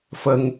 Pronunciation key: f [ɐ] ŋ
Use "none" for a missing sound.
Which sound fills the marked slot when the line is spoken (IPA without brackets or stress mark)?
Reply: ə